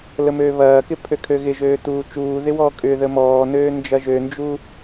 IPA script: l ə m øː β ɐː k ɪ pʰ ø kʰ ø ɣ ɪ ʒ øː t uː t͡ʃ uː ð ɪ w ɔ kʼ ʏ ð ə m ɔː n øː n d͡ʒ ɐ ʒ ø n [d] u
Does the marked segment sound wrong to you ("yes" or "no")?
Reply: yes